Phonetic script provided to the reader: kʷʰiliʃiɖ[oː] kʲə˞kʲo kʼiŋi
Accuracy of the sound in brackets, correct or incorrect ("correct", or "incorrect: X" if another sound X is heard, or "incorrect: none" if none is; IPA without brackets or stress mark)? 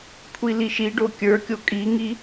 incorrect: o